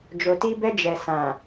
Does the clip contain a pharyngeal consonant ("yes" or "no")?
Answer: no